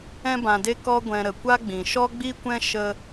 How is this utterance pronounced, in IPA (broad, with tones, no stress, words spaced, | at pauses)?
ɛ̃˧bã˨de˧ kɔ˧ɡʷɛ̃˨ ɾə˨kʷa˦ɡ͡bĩ˨ ʃɔ˦ɡ͡bi˦kʷɛ̃˦ ʃə˦